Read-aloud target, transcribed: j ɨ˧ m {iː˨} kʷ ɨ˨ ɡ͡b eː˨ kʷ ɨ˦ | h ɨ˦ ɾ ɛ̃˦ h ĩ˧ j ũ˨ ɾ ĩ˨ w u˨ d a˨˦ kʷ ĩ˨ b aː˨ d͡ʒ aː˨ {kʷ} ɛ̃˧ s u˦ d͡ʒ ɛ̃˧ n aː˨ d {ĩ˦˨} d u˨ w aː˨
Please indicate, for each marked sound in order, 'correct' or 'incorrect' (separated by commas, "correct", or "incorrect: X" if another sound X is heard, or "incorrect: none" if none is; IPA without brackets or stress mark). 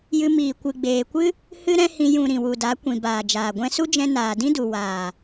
correct, incorrect: ɡʷ, incorrect: ĩ˦